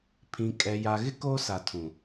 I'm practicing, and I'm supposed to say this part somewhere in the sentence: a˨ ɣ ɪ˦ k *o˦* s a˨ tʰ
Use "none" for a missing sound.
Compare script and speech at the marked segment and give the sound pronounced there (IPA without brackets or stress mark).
o˦